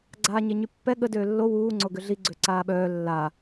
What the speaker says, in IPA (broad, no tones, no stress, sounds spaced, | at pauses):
ɡ͡ǀ aː ɲ e ɲ y pː ɛ ɠ ə d øː lː o w uː ŋ͡ǀ o ɡ ø ɮ i ɡ͡ǀ ø ǀ aː ɓ œː lː a